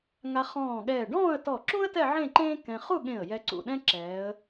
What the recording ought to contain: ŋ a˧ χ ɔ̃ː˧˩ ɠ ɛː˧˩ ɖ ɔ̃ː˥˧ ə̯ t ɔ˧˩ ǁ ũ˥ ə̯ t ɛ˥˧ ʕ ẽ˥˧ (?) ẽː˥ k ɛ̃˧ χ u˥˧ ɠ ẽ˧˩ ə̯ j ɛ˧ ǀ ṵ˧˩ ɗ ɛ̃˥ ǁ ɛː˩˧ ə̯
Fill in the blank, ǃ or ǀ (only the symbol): ǃ